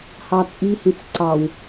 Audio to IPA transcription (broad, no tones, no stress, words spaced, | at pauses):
hɑt͡sʼihĩt͡s ǀɑw